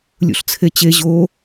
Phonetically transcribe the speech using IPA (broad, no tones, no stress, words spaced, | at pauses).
lʲṵɬt͡sʰet͡ɕe ʑo